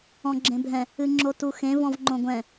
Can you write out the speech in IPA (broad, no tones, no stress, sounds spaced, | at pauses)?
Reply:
ɔ̃ ɡ͡ǁ ẽ bʱ ɛ̃ | ɨ ŋ͡ǁ o t u x ẽ v ɔ̃ v ŋ͡ǃ õ ɡʷ ɛ̃